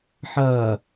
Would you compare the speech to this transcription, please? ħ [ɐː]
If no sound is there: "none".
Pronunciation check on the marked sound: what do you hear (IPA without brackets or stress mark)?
ɐː